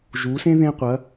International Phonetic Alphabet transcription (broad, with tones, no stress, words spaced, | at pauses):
ʒu˩˧sẽ˥ ðẽ˧ qʷɐ˩˧